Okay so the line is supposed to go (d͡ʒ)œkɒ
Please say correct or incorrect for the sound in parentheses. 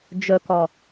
correct